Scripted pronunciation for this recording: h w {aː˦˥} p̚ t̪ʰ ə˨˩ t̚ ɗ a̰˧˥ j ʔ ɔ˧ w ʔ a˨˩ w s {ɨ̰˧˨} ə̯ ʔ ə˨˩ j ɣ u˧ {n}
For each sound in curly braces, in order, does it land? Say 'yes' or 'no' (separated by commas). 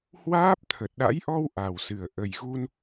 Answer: yes, no, yes